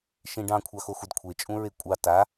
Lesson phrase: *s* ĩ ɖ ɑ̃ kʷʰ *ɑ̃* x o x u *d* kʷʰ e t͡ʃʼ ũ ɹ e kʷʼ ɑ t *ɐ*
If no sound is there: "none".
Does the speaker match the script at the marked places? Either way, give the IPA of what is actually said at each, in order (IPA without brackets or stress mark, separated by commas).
ʃ, ɑ, d, a